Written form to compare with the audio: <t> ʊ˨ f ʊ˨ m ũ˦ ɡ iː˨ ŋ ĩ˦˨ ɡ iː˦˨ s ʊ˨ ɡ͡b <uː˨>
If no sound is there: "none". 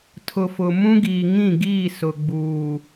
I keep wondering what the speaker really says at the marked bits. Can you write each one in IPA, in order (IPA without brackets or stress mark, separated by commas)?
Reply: tʰ, uː˨